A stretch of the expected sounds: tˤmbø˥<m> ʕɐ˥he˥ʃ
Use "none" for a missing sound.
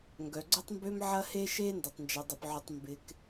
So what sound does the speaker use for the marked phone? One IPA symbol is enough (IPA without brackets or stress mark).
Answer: m